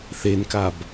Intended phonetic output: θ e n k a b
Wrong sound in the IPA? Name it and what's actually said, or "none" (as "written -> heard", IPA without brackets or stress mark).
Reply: none